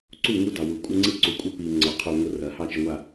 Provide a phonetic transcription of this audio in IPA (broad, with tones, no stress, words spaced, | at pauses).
ǀu˦˨ŋu˦dɑ˨wu˨ kʷʼə˦ŋ͡ǀi˦ ǀu˨kʷʼə˦ pi˨ ŋ͡ǀɑ˨qʰu˨ ŋʷə˦rɐ˨˦hɑ˦ t͡ʃə˨ŋʷa˨